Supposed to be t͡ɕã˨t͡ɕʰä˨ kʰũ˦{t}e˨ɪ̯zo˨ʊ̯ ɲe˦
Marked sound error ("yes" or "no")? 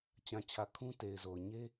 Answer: no